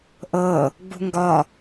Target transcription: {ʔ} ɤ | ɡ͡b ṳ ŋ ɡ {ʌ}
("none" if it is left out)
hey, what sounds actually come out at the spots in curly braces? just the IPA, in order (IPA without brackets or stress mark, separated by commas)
ʔ, ɒ